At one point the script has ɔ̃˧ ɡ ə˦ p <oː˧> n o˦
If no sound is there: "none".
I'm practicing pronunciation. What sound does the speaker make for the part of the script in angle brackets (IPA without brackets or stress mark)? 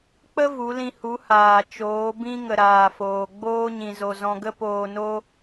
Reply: oː˧